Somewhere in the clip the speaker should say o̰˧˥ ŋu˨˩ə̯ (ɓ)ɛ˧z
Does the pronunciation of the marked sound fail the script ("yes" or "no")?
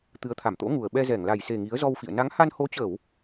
no